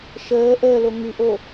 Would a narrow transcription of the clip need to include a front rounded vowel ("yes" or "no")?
yes